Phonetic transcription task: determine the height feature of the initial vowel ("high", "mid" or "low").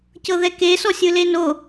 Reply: mid